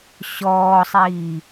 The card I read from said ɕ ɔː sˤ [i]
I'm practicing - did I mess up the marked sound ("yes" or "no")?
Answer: yes